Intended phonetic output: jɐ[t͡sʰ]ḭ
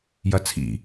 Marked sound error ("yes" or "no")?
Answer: no